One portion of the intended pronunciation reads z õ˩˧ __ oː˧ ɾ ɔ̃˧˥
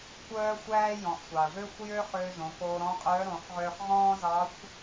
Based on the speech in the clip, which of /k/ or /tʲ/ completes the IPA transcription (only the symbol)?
k